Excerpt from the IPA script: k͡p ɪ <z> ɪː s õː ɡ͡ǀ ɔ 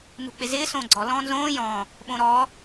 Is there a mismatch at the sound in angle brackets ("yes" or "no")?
no